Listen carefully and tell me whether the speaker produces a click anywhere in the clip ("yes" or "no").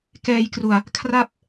no